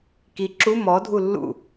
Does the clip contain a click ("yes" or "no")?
yes